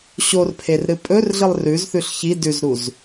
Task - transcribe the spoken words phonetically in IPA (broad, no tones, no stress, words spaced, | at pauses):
ɕorpʰerɾɨ pʼɵrɮɨlˠ rʉzθʉɬ çi dʉzɾuz